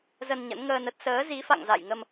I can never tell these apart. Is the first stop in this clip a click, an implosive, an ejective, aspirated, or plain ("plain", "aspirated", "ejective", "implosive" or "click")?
plain